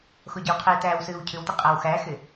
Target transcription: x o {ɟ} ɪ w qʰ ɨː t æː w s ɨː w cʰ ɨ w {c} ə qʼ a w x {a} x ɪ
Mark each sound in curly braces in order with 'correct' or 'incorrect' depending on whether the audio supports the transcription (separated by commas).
correct, incorrect, incorrect